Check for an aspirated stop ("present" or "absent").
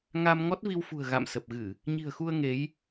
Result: absent